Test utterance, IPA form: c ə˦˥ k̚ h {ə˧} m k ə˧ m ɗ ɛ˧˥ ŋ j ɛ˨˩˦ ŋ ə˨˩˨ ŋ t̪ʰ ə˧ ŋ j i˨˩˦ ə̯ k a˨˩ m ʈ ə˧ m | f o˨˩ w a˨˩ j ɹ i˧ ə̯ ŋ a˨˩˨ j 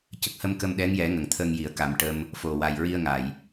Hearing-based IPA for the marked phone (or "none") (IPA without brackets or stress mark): ə˧